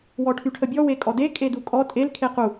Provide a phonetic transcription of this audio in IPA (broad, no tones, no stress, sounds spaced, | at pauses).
w ɔ ʈʰ y ʈʰ ə bʲ ɔ w e kʼ ɔ d e kʼ e d u kʼ ɔ tʼ e l kʰ e q u